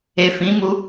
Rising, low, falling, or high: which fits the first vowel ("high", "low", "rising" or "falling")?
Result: low